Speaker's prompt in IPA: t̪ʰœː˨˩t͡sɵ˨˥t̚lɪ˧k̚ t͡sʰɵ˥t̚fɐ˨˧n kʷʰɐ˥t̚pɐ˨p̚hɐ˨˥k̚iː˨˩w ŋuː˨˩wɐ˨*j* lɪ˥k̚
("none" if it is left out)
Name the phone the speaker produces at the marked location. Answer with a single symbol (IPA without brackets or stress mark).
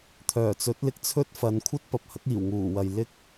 j